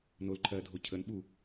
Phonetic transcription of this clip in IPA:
n o l ǃʰ ɜː dʱ o cʰ ə n ɓ u

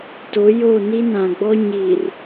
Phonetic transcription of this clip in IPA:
t o˨˦ j o˦˨ n i˦ n ã˨ ɡ͡b ɔ˦ ɲ i˨ r

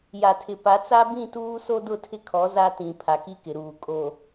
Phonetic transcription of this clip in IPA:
j a˨ tʰ ɪ˨ p a˨˦ t͡s a˦ b ĩ˦˨ t uː˦ s o˦ d ʊ˦˨ tʰ ɪ˦ kʰ ɔ˨˦ z a˦ t ĩ˨ pʰ a˨ k i˦ k ɪ˨ ɾ uː˨ kʼ o˨

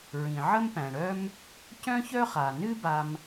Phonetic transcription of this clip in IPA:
ɹ ĩ˩ ʕ ə˥ m p æ̃˩ ɽ œ˥ m | c œ̃˥ ç œ˥ χ a˩ n ɨ˥ b a˥ m

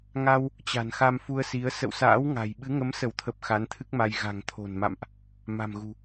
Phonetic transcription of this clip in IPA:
ŋ a˧ w | t͡ɕ a̤˨˩ n x a˧ m f u˧ ə̯ s i˨˦ ə̯ s ə̰˧˨ w s a̰ː˧˥ w ŋ a̤˨˩ j ɓ ɨ˨˦ ŋ ə˨˦ m s ə˧˩ w t̪ʰ ə˨˩ p̚ x a˨˦ n t̪ʰ ɨ˦˥ k̚ m a˧ j ɣ a̤˨˩ ŋ t̪ʰ o̤˨˩ n m a̰˧˨ m ʔ | m a̤˨˩ m ɣ ṳ˨˩

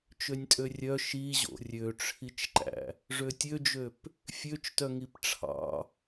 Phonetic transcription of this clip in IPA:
t͡ʃ ø nʲ tʼ ø rʲ œ ʃ i ʑ o̰ rʲ ø ʈ͡ʂʰ i t͡ʃ ǃ æ̰ | ʐ ø tʲ ø d͡ʒ ø p | fʲ ø t͡ʃ t œ ŋ i p ʈ͡ʂʰ ɑ̰

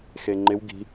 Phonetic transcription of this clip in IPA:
x e ŋ͡ǃ ɪ w ɡ i̤

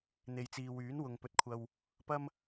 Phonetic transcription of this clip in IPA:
n̪ e˨ j t͡s iː˨ w yː˨˥ n w ʊ˨ ŋ p ɵ˨ t̚ kʷʰ ɐ˨ w | p ɐ˥ m

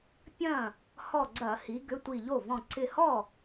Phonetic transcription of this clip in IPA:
pʲ ɐ̃˥˩ | h ɔ˧˩ ɡ͡ǀ ɐ˧˩˧ h i˩˧ ɡ ʏ˩˧˩ tʷ i˧˩ ʎ o˥˩ v ɔ̃˧˩ ǀ ɪ˧˩ h ɔ˥˩

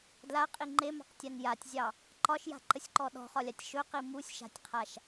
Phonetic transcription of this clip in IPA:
d l a qʼ i ŋ͡ǃ e m ɑ̤ q tʲ a n j a tʲ zʲ ɑ | ǃ ɒ ʃ j a̤ ǃ ə sʲ ǃ ɔ ɗ ɔ̤ χ ɒ lʲ a tʲ ʃ ɵ q i m u sʲ ʃ a̤ tʲ qʰ a ʃ

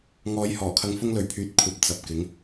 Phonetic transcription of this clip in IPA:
ŋ ɔː˨˧ j h ɔː˨˩ kʰ ɐ˧ ŋ f ʊ˥ ŋ l ɵ˨˥ ɥ pʰ yː˨ t̚ kʷʰ ɐ˨˥ p̚ t͡s ɐ˨ p̚ k ɪ˨˥ ŋ

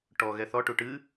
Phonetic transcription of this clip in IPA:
ʈ ɔ ɣ ɛ θ ɔ ʈ u ʈ ɨ

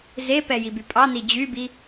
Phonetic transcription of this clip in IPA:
z e p ɛ j i b y pʼ ɑ n i d͡ʑ y b i

